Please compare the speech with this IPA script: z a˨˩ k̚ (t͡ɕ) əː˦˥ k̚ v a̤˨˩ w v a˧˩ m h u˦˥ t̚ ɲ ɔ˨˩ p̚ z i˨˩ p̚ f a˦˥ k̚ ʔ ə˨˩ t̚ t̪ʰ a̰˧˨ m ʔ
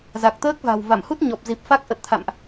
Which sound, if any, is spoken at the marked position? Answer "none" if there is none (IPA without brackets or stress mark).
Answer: t̪